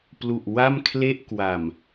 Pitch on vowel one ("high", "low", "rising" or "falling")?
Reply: low